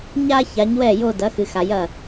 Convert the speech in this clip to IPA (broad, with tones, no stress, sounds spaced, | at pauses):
ɲ a˥ ç a˨˥ ɲ w ɛ˥˩ j o˥˧ d ɐ˨˥ x ɨ˨ x a˨ j ɐ˥˩